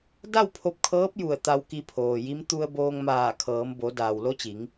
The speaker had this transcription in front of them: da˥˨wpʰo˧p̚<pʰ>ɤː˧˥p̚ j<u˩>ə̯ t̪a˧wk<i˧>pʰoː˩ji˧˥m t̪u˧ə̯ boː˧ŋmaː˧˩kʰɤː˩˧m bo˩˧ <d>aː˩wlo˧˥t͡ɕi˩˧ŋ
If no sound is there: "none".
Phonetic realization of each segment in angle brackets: kʰ, u˧˩, i˧, d

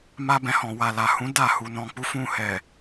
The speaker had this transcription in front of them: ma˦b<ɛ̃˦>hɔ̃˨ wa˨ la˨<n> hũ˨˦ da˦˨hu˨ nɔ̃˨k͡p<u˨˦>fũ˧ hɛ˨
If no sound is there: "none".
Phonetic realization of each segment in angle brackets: ɛ̃˧, none, u˨˦

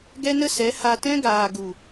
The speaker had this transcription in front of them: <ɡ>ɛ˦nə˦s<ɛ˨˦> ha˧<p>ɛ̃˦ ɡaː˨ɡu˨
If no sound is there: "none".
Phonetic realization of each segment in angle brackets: ɡ, ɛ˨˦, t

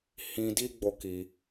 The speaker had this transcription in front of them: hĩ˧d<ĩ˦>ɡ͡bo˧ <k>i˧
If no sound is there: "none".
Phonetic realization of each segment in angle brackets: i˦, k

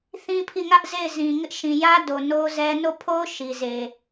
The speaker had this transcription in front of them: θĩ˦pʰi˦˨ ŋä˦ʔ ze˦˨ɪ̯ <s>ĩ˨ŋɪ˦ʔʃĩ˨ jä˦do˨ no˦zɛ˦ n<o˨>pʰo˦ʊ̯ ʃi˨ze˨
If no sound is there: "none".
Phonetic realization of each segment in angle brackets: z, o˦˨

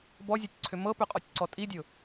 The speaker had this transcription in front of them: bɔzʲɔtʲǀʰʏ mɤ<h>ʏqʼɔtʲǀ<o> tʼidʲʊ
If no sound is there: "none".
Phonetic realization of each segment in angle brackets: p, ɔ

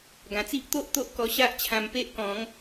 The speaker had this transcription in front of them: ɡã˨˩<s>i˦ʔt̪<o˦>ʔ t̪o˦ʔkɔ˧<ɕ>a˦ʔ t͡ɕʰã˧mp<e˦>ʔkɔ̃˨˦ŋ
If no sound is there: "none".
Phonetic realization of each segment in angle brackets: t͡s, o˦, ɕ, e˦

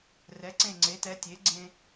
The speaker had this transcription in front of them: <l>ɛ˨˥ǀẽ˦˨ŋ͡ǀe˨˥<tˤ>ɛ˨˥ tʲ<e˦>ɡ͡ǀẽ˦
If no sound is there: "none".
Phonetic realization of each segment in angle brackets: r, t, e˨˥

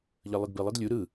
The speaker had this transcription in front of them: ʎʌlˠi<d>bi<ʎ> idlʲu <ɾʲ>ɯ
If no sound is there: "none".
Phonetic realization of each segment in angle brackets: d, lˠ, ɾ

